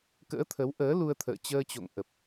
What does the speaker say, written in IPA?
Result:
k ə̰ː˧˥ t̪ʰ ə˨˦ w ʔ əː˨˦ l u˧ ə̯ t̪ʰ ə̰ː˧˨ t͡ɕ əː˧ t͡ɕ o̰˧˨ ŋ ʔ ə˨˩ p̚

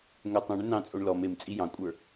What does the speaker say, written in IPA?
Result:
ŋ ʏ tˤ ẽ ɳ ʏ n ɑ̃ t͡sʼ o ɳ l ɔ m e m t͡sʼ i j ɑ̃ kʷʼ ə˞

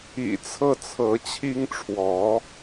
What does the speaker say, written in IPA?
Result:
ḭ˨˩ t͡sʰ ɤ˥˩ t͡sʰ ɤ˧˥ t͡ɕʰ i˥ ŋ ʈ͡ʂʰ w ɔ˧˥

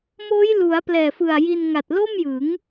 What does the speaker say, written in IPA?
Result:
m oː˦˥ j l u˩˦ a̯ p l ɛː˨˩ f ɯ˨˩ a̯ j i˧ n ŋ a˨˩ t̚ l o˥˩ m j ɯ˩˦ ŋ

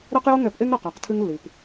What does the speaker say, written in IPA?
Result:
ɾ ɛ˦ q j o˦ ŋ ɛ˨˦ p ʔ e˦ ŋ ɾ ɐ˨ q a˨˦ q tʰ ɨ˦ ŋ lː i˨ p

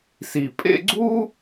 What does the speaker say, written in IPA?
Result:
s i˨ pʼ ḛ˦ ɡ͡ǀ u˥

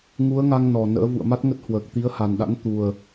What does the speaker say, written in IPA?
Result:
ŋ u˨˦ ə̯ ŋ a˧ ŋ n ɔ˨˩ n ə̰ː˧˥ v ṵ˧˨ ə̯ m a˦˥ t̚ ŋ ə˦˥ t̚ h w əː˨˩ k̚ t̪ i˨˦ ə̯ h a˨˩ n ɗ a̰˧˥ n t̪ u˨˩ ə̯

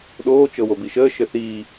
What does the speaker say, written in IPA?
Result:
ɗ oː t͡ʃ ɤ w o b i ʃ əː ʃ ɘ θ iː

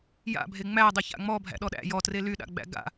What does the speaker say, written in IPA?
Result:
j a̰ bʱ e ŋ͡m æ dˤ ɪ ç a̰ ŋ͡m ɔ bʱ æ̰ ɗ ɔ ɗ æ̰ j ɔ t r e l y ɗ a̰ ɡ͡b æ̰ ɡ a̰

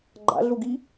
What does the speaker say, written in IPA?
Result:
ɡ͡ǃ a̰ ɮ u ɡ i

